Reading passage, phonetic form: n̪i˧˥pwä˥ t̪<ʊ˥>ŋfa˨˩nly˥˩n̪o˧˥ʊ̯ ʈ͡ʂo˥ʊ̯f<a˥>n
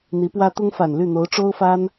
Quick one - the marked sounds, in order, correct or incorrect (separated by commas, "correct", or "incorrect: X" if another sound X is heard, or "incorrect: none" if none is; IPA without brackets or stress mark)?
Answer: correct, correct